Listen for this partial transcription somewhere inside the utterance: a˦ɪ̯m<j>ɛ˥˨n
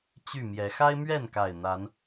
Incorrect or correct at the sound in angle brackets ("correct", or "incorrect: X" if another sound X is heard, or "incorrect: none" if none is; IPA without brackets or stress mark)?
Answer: incorrect: ɥ